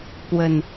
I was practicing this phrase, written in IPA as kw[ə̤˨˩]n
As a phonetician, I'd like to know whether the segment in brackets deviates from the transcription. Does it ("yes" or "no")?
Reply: no